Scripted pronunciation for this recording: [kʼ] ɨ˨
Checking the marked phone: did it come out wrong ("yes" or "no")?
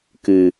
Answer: yes